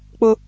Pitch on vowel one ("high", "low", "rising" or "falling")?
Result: high